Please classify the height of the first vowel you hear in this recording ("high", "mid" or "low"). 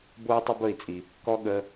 mid